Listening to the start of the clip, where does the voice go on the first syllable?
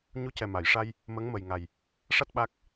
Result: rising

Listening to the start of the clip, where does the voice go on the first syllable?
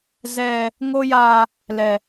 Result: high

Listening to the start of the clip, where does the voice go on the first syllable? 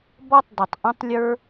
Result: high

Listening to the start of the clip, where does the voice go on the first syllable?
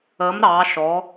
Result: rising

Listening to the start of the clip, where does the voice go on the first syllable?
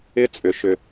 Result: high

